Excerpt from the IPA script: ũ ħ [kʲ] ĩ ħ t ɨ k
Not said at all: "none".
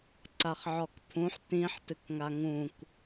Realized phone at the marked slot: t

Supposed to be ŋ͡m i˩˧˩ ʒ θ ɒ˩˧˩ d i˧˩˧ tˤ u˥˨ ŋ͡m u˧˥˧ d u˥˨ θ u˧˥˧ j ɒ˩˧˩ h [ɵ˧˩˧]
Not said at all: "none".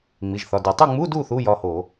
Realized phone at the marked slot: o˧˩˧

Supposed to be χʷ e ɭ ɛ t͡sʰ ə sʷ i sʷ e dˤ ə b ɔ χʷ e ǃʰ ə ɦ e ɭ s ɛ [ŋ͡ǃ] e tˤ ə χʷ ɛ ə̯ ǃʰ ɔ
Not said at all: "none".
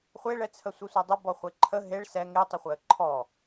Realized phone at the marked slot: ŋ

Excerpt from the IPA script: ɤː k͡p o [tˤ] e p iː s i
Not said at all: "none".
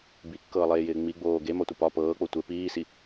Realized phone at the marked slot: tʷ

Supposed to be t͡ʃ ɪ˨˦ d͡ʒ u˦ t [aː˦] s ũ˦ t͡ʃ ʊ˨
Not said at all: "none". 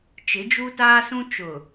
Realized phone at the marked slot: aː˦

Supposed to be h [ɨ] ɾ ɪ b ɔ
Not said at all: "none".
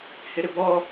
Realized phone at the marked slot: ɪ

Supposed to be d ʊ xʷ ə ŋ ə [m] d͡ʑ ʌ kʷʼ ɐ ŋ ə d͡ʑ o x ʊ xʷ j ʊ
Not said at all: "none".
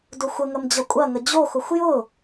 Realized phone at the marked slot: m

